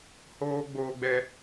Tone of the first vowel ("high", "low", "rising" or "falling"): high